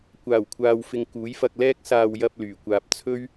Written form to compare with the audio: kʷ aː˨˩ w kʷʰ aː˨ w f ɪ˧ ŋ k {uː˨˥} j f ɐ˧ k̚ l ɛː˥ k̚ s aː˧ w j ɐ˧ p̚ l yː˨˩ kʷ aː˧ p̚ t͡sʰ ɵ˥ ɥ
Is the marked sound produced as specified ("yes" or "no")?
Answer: yes